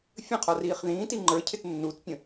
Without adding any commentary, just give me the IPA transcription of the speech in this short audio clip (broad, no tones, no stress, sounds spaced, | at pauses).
fʲ ə̃ qʰ ɔ r iː χ ð ĩː t i ŋ͡ǃ ə˞ cʰ ɪ t nː u t pʲ ə̃